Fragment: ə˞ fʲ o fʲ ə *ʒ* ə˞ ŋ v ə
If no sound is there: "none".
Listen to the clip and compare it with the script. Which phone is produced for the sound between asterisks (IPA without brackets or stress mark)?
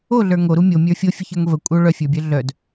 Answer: ç